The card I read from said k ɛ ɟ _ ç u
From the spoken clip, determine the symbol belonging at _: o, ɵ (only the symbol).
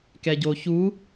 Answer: o